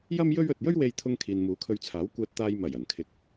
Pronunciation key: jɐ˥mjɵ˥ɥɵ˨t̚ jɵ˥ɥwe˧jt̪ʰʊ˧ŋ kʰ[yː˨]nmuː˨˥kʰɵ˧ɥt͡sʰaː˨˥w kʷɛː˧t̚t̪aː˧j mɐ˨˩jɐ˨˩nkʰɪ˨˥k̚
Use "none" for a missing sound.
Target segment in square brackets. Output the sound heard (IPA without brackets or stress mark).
iː˨